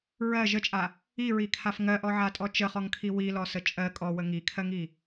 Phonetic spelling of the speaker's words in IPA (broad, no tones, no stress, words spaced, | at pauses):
ɹɜ ʒət͡ʃʼa | iɹikʰaf ŋɜʔɔʕatʼɔ t͡ʃəχɔŋkʰi wilɔsə t͡ʃʼɜ kʼɔwə ŋikʰɜŋi